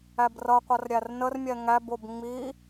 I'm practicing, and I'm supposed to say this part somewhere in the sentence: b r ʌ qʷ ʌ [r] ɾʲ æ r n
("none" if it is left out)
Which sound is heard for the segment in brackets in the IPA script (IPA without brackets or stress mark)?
r